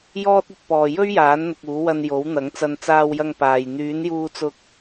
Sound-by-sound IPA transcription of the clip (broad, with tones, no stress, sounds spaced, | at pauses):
j ɔː˥ t̚ ɵ˧ t̚ p ɔː˨ j ɵ˥ ɥ j aː˨˥ n n̪ ʊ˨ k̚ uː˨˥ w ɐ˧ n j o˨˥ w n̪ ɐ˨˥ ŋ t͡s ɐ˧ n t͡s aː˧ w j ɐ˧ ŋ p aː˨ j n̪ yː˨˥ n j uː˧ t͡s ʊ˧ k̚